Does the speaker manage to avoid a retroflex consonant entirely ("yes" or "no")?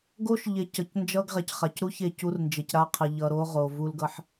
yes